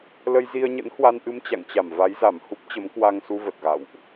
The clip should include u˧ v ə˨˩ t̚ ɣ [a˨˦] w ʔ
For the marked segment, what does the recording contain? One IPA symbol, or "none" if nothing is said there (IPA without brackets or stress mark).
a̰˧˨